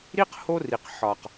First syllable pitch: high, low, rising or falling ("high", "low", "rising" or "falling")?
high